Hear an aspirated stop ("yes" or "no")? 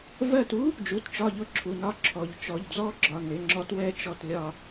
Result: yes